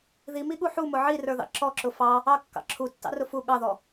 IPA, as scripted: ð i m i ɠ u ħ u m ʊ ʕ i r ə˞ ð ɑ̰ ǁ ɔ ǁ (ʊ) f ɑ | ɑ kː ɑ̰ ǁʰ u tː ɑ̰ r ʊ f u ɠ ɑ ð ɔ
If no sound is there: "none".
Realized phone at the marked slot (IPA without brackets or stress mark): ʊ